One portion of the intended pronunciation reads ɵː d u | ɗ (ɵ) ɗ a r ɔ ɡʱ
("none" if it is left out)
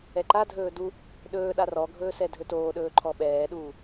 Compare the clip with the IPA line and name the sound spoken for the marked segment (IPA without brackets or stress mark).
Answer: ɵː